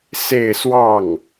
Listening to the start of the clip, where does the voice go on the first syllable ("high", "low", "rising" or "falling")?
falling